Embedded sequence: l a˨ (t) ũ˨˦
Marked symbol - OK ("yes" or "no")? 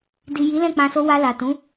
yes